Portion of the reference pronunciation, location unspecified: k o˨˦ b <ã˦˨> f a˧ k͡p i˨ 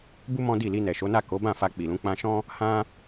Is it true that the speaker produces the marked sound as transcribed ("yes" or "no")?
yes